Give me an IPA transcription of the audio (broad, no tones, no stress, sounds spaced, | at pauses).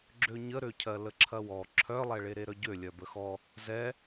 ɡ͡ǁ ø ɲ ə ɾ ø cʰ ɜ l ə ǁʰ ɐ w ɔ ǁʰ œ lˠ ɛ ɭ e ɾ e ɾ œ ɟ ø lʲ œ b ə x ɔ | z ɛ